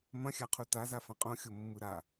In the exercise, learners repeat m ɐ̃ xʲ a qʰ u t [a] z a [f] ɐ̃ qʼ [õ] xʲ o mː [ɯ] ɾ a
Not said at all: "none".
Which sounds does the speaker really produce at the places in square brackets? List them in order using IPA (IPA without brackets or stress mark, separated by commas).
a, f, õ, ɯ